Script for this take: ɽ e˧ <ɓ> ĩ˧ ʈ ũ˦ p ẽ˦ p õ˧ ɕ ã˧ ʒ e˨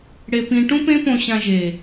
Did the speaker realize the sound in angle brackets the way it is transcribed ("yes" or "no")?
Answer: no